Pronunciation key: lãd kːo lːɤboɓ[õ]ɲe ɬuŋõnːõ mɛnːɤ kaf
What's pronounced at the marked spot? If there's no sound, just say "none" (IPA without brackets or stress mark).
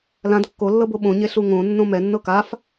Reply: õ